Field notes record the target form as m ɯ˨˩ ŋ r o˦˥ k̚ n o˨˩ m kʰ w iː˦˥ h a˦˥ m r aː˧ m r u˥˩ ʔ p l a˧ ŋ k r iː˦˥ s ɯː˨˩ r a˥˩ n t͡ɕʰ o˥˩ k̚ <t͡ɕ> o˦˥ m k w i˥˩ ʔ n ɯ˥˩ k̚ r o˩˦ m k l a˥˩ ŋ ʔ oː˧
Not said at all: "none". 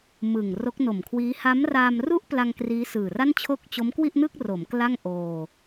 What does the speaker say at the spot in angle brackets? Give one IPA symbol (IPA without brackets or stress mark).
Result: t͡ɕ